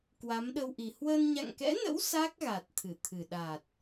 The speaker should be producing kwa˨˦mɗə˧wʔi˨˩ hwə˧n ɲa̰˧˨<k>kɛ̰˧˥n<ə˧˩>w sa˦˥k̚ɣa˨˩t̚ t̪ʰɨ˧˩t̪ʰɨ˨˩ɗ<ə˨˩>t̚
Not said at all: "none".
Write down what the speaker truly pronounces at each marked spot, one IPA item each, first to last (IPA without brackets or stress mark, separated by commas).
ŋ, ə̰˧˥, a˨˩